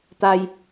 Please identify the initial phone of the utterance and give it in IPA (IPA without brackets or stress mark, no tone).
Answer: t̪